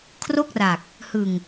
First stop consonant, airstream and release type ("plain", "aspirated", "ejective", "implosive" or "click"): aspirated